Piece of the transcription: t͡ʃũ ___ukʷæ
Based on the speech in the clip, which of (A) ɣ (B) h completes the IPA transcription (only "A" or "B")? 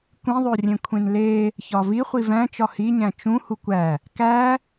B